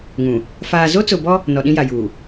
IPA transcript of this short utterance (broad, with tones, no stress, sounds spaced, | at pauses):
ŋ ũ˨ | f aː˨ z o˦ t͡s ʊ˨ b ɔ˦ | n ɔ˨ ɗ ĩ˦ j a˨ j uː˨